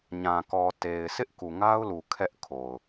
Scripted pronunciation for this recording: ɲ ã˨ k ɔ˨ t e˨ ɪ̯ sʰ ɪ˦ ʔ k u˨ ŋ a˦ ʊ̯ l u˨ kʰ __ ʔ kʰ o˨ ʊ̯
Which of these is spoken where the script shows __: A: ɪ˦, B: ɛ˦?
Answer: B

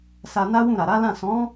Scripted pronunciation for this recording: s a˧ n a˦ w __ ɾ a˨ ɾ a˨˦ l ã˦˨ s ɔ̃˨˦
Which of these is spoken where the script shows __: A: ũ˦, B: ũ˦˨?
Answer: B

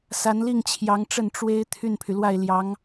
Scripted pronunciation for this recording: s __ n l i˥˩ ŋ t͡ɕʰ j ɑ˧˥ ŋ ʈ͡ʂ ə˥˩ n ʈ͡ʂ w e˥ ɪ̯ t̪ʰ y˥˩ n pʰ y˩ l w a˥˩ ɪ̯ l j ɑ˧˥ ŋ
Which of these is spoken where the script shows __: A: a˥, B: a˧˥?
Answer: B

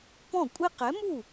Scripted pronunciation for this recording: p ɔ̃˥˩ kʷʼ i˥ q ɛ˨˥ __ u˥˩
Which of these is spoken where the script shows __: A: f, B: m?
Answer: B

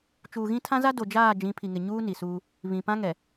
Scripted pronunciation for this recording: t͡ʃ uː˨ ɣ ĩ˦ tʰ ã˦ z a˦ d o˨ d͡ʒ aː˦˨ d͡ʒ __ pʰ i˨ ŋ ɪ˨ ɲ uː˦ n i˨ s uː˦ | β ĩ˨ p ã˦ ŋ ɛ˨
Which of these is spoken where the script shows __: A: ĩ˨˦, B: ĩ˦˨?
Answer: A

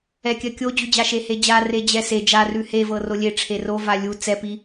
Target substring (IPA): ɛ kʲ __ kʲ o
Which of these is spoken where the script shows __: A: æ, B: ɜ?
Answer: B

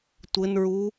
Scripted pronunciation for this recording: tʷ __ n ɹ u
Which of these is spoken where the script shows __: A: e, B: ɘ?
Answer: B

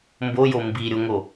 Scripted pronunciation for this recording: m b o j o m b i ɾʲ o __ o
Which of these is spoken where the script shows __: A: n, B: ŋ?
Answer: B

